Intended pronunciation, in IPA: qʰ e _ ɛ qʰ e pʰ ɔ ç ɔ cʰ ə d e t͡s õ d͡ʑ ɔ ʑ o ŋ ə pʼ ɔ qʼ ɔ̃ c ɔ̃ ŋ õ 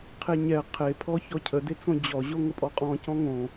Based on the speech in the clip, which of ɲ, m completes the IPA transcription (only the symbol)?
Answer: ɲ